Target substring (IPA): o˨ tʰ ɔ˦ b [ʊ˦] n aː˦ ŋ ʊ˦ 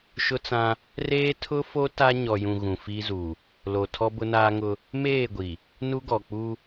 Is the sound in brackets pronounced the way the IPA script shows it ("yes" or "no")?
yes